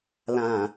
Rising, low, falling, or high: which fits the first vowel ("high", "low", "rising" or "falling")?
low